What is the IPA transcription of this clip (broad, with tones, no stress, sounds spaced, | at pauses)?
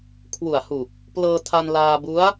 kʰ w u˨˩ a̯ h u˨˩ k̚ | p l ɤː˧ tʰ a˧ n l aː˧ b u˦˥ a̯